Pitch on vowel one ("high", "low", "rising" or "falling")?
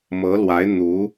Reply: rising